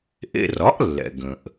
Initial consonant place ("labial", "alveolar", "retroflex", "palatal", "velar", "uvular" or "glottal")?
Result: glottal